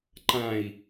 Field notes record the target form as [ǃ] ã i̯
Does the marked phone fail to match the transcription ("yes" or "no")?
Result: no